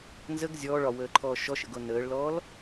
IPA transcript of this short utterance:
n z ə ɡ zʲ ɔː ɭ ɒ w əː ǃʰ ɔː ʃ ɔ ʃ ə̰ ɡ o n əː ɭ l ɔː l

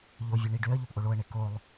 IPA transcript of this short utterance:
ʎ o vʲ u ɳ i ɖ ø ə̯ ʎ o p ʔ o ɭ o ə̯ ɳ e k o lˠ

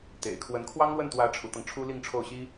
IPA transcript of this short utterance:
t̪ ḛ˨˩ ɪ̯ kʰ w ə˧˥ n kʰ w ɑ˥ ŋ l w ə˥˩ n t̪ w ä˧˥ ʈ͡ʂʰ u˧˥ t̪ ɤ˧ ŋ ʈ͡ʂʰ u˥ l i˥˧ ŋ ʈ͡ʂʰ o˥˩ ʊ̯ ɕ i˥

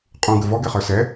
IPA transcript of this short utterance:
qʼ ũ ɡ ə v ɔ ɡ ɛ χ ə˞ s ɛ

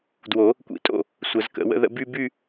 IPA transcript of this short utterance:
d w o˨˩˦ | kʷ ḭ˨˩˦ tʼ o̰˥˩ | sʷ ə˨˩˦ z k ə̰˨˩˦ w ə̰˥˧ ð ə̰˥˧ b y˥˧ b y˥˧

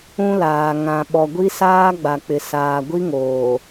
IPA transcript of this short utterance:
ũ˦ l aː˨ ŋ ã˨ ɓ ɔ˨ ɡʷ i˦ s aː˦ ɡ͡b a˨ k͡p ɪ˨ s aː˨ ɡʷ i˦ ŋ oː˨

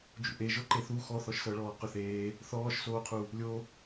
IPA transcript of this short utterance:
d͡ʒ ṵ ʔ e ʒ o ǃ e θ u x ɔ θ ɔ ʃ s ɤ ɭ ɔː q ʏ θ eː | θ ɔː ʃ s oː qʰ u | lʲ o

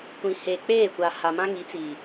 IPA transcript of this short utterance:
kʷ ĩ˨ h e˨ k͡p eː˦˨ kʷ a˨ h a˨ m ã˦ ŋ i˨˦ t͡s iː˨

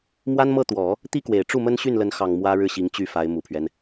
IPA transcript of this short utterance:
m w a˥ n m ɤ˥˩ t̪ w ɔ˨˩˦ | t̪ i˥ k w e˨˩ ɪ̯ ʈ͡ʂ u˥˩ m ə˥ n ɕ y˥˩ n l ə˧˥ n x ɑ˨˩ ŋ m w ä˥ ɻ ɻ̩˥˩ ɕ i˧˥ ŋ t͡ɕ y˥˩ f a˧˥ ɪ̯ m u˨˩ pʰ ɥ ɛ˦ n

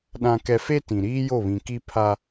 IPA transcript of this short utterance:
ɗ ã˦ k ɛ˦ f e˦ t ĩ˨ ɾ iː˦ j o˦˨ β ĩ˨ k i˦ pʰ a˦

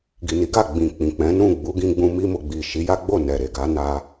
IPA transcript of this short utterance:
ɡ i˨ n i˨˦ ɡ a˦˨ ɡ͡b ĩ˨ k͡p ĩ˨ k͡p ɛ̃˨˦ n ũ˦˨ ɡ͡b u˨˦ ɡ ĩ˧ ɡ͡b ũ˧ m i˧ m o˨ ɡ͡b i˨ ʃ i˨˦ j a˦ ɡ͡b o˦˨ n ɛ˨ ɾ e˨ ɡ a˨˦ n a˧

